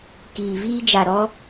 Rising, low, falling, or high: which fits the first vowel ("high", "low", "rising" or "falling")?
low